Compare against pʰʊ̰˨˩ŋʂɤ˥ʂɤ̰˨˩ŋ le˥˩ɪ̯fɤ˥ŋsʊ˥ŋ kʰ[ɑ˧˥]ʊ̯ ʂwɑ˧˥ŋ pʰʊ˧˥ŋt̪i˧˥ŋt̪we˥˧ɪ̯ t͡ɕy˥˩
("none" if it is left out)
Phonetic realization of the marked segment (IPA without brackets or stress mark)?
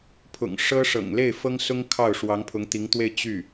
ɑ˥˩